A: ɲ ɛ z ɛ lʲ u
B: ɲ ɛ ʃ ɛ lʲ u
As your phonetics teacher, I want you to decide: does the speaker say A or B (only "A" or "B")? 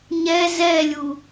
A